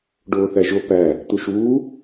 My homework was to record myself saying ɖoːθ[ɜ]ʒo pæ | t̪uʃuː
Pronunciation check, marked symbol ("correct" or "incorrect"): incorrect